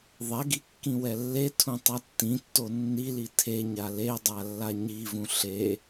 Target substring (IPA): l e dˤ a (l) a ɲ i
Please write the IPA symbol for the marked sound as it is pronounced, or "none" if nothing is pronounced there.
lː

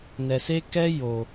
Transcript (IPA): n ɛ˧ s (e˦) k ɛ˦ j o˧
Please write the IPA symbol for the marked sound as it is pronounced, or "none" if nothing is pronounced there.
e˦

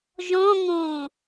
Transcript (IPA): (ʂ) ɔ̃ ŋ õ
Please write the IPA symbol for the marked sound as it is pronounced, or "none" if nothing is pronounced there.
ʒ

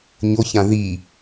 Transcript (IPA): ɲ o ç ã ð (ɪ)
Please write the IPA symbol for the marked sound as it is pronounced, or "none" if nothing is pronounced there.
i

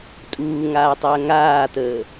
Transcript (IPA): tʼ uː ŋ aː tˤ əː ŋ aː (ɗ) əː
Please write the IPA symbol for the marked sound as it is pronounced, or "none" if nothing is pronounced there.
t̪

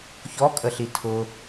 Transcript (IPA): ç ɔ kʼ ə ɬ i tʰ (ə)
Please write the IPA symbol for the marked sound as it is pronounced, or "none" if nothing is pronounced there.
ʊ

